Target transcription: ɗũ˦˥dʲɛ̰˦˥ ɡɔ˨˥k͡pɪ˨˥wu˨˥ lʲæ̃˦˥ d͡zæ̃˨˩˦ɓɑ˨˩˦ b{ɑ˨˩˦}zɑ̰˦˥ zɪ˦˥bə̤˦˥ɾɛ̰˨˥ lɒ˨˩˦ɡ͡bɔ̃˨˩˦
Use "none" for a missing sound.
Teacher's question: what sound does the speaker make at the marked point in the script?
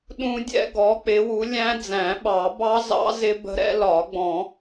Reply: ɑ˦˥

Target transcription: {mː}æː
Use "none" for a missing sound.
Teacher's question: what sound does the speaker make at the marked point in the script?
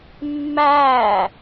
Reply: mː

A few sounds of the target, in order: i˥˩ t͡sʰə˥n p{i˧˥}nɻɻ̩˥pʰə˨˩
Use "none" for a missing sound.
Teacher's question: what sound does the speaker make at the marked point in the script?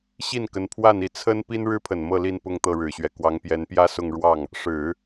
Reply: i˥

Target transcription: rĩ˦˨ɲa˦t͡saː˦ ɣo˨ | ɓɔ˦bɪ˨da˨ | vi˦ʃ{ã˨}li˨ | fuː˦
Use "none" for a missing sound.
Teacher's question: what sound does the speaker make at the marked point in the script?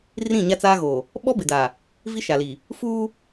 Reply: a˨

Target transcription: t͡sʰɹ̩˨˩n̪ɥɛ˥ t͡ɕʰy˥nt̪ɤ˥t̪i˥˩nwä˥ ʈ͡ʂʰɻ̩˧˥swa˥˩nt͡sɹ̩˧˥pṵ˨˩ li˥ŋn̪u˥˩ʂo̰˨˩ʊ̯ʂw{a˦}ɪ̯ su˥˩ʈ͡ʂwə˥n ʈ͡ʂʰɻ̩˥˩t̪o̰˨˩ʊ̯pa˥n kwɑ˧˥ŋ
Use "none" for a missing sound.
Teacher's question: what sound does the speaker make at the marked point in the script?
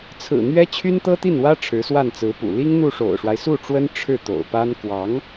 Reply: a˦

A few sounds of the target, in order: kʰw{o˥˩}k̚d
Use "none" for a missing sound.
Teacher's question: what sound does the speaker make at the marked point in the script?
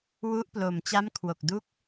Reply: o˨˩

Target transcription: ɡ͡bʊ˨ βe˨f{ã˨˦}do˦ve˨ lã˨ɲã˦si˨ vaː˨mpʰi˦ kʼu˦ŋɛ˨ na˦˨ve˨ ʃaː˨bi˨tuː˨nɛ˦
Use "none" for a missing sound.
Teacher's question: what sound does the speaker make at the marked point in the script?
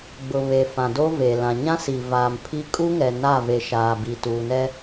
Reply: ã˨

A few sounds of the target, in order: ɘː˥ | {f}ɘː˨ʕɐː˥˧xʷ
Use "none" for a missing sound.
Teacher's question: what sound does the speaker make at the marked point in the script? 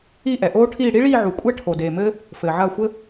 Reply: f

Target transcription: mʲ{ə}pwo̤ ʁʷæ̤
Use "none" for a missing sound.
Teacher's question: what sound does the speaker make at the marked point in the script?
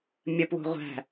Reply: ə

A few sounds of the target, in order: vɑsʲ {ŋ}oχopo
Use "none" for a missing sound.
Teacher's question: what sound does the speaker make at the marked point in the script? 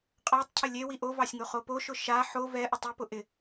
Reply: ŋ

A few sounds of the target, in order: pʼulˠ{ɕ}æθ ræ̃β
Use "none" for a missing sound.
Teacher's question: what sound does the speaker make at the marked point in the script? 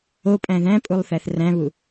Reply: θ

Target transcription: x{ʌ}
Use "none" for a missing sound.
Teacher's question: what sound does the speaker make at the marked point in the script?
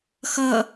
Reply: ʌ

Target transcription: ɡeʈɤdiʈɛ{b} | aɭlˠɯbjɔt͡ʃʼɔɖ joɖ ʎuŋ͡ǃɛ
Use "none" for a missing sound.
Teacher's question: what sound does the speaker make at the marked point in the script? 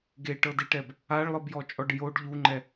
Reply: b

